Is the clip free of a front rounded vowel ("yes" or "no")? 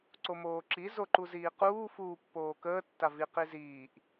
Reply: yes